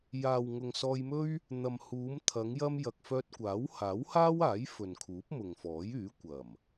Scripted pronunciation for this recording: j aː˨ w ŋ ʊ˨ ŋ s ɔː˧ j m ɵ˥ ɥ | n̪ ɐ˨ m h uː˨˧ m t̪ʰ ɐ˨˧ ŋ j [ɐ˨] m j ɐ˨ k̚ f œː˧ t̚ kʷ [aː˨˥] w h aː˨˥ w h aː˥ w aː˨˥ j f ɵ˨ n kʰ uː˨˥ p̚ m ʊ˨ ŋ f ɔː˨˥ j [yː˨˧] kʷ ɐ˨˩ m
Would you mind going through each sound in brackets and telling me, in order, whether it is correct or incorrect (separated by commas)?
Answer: incorrect, correct, incorrect